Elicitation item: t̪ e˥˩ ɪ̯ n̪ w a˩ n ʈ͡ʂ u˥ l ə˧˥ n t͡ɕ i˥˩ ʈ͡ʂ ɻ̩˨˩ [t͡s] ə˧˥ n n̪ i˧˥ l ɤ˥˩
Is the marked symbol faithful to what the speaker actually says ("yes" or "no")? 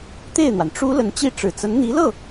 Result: yes